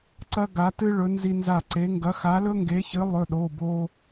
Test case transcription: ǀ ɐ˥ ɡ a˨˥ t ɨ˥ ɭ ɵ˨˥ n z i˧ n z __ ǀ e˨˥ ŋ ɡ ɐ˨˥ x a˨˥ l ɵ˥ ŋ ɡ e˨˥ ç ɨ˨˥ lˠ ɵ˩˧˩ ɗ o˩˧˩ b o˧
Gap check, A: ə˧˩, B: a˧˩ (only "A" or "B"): B